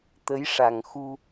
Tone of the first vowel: rising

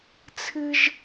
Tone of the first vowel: high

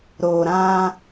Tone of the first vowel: low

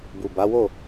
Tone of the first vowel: low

